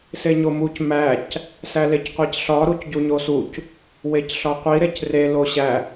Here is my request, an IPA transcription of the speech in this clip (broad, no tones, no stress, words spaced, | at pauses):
seɲomuc mæc | sælecqʷecɬɒ ɾucɟuɲosuc | wecɬɒqʷi ɾecre loɕæ